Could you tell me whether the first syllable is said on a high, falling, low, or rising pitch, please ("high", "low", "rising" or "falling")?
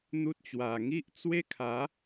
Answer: high